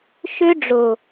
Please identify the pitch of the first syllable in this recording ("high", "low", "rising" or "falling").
high